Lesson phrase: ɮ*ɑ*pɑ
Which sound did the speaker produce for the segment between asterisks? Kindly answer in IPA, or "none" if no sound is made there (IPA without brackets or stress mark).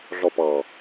ɔ